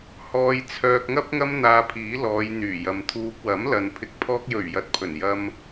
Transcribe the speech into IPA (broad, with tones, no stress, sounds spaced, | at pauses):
h ɔː˧ j t͡sʰ œː˧ k̚ ŋ ɐ˥ p̚ ŋ ɐ˥ m n̪ aː˧ pʰ iː˨˥ l ɔː˨˧ j n̪ yː˨˩ j ɐ˨ m t̪ʰ uː˧ p̚ w ɐ˨˥ m l ɐ˨ n pʰ ɪ˨ k̚ pʰ ɔː˧ k̚ j ɵ˨˩ ɥ j ɐ˧ t̚ pʰ ɵ˨˩ n j ɐ˧ m